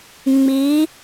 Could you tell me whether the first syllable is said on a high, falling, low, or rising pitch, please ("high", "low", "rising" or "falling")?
rising